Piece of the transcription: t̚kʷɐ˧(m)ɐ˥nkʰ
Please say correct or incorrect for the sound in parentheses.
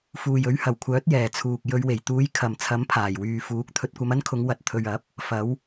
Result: correct